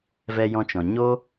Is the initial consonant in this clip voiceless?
no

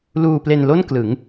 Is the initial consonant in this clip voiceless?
no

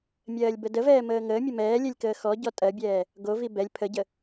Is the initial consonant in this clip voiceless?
no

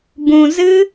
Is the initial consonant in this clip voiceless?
no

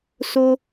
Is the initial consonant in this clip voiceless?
yes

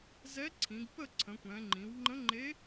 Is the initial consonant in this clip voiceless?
no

